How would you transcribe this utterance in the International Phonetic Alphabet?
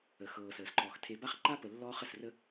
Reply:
ə˨ x ɤː˨ s əː˨ s ǃ ɔː˨ x tʰ e˨ b a˦ χ ǃ a˦ p ə˨ lː ɔː˦ χ ə˨ s r ə˦

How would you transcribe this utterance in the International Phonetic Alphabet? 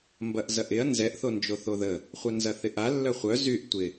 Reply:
m b ɐ ʔ z ɐ ʔ ɪ ɐ̯ n z ɛ ʔ θ o n d͡ʒ o θ o ð ə | χʷ œ n z ɐ θ ɪ ʔ a lː œ χʷ œ z y ʔ tʷ ɪ

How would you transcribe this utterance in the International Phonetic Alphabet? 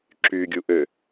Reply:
ǁ y ɡʲ u ʔ ø

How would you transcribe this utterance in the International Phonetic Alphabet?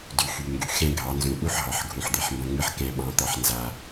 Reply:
d y˨ x y˨ ŋ ɡ y˨ x ɛ̃˦ ɡʱ ɑ˨˦ n z ũ˨ ʔ u˦ ħ ɦ ɑ˨ ħ ɡʱ ũ˨ ħ d̪ e˨ ħ m b ɐ̃˦ ŋ͡m ɨ˦ ħ k ɛ̃˦ ɓ ɑ̃˦ t̪ ɑ˦ ħ n z a˦

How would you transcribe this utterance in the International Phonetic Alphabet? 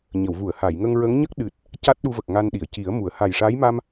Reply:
ɲ ə˨˩˨ w v u˨˩˨ ə̯ h a˨˩˨ j ŋ ə˧ ŋ ɹ ə˧˥ ŋ ɲ ə˦˥ k̚ ɗ ɨ˨˩ t̚ | c a˦˥ t̚ ɗ u˧ v ə˨˩ k̚ ŋ a˧ n ɗ i˨˩˨ ə̯ c i˨˩˦ ə̯ m u˨˩˦ ə̯ h a˨˩ j ʂ a˧˥ j m a˧ m

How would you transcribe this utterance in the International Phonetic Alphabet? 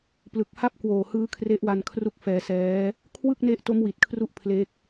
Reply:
p l ɯ˨˩ k̚ h a˥˩ p̚ k w oː˨˩ h ɯː˦˥ kʰ r e˦˥ ʔ w a˧ n kʰ r u˦˥ k̚ f ɛː˧ s ɛː˦˥ | kʰ w ɯ˥˩ k̚ n e˦˥ ʔ t o˦˥ m w i˨˩ t̚ kʰ r u˦˥ ʔ pʰ l e˦˥ k̚

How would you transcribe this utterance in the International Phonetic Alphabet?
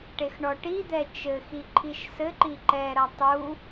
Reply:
ʈ e x ɳ ɔ ʈ i d̪ ɛ t͡ʃ ɘ x i ǃʰ i ʃ s ɘ ǃ i ǃ ɛ ɾ ɐ tˤ u

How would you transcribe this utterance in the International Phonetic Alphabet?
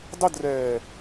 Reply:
dˤ ʊ d r ɛː

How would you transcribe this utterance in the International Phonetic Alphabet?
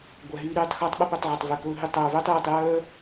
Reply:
ɡʷ æ˨ ɦ yː˧ ɾ yː˧ tˤ x ɵː˧ tˤ ɓ ɵ˦ p ø˧ tˤ ʕ ɵ˨ tˤ v ø˨ k ɵː˧ ɦ y˧ tˤ œː˨ v øː˦ tˤ j y˨ tˤ j œː˦

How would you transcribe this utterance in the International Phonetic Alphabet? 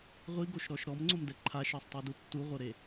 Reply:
ʁʷ i ɡ o ʃ ɾ ɔ ʃ ɾ ɔ m ŋ͡ǀ o m d ɛ ǃʰ a ʃ ɤ sˤ tˤ u d u tː u ʁʷ ɤ ɾ e

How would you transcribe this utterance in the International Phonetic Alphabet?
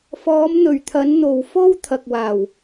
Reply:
f ɔː˨˧ m n̪ ɵ˨˩ ɥ t̪ʰ ɐ˨˧ n n̪ o˨˩ w f o˥ w t̪ʰ ɐ˨ k̚ w aː˨˩ w

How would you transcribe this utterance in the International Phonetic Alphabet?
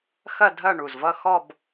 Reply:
x ɐ˦˨ dʱ ɐ˦˨ ɳ u˨˩ z v ʌ˦˨ x ɔ˦˨ b

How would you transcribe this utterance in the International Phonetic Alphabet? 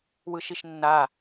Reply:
w ɯ ʃ i ʃ nː a

